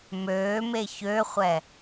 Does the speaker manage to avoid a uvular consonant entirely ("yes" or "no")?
no